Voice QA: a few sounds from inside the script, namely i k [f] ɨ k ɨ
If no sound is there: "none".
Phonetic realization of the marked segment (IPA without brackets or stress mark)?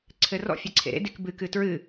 b